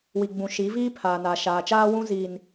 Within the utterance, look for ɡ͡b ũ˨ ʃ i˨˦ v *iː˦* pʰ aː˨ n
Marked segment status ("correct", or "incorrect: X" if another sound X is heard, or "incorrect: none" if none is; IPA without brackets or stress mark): correct